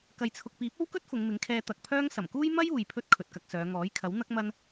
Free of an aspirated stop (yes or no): no